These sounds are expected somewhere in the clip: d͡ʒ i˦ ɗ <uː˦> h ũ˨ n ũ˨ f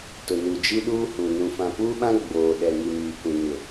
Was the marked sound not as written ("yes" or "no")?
no